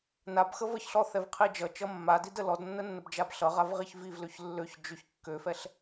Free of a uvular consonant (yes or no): no